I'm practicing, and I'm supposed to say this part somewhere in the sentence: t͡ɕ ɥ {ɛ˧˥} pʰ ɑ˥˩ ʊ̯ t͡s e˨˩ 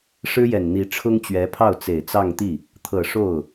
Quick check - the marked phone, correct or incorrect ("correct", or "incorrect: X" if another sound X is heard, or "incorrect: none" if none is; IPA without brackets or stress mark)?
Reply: correct